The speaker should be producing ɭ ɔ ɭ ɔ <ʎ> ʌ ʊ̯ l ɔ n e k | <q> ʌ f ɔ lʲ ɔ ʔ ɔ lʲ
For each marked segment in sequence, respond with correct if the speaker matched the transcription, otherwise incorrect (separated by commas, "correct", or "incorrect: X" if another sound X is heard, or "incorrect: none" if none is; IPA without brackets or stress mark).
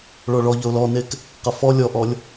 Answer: correct, correct